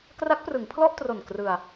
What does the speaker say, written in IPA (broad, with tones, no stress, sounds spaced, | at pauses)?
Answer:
k r a˦˥ k̚ p r ɯ˩˦ ŋ pʰ l ɔ˥˩ ʔ t r o˨˩ n k r ɯ˧ a̯